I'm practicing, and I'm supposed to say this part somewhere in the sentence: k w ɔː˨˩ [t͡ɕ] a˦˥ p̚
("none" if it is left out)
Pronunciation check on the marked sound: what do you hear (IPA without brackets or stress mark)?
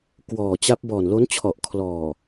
t͡ɕ